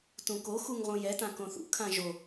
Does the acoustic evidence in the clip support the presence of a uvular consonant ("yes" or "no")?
yes